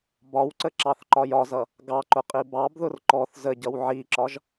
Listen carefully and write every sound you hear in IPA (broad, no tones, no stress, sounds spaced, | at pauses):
b ɒ w ǀ ə ǁ ɑ θ ǃ ɒ j ɒ z ʌ | ɡ ɑ ǃ ʊ qʼ i b ɑ b ð ʊ r ǃ ɔ θ z ə ɟ ʌ w ʕ i ǁ ɒ ʒ